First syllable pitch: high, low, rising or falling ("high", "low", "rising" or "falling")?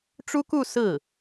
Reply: high